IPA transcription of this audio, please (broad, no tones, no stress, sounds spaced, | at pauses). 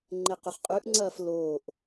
ŋ͡ǃ e q ɵ χ qʼ ʉ ʔ ŋ͡ǀ ɐː f l oː ʔ